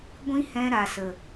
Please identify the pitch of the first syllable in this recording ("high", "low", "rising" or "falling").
high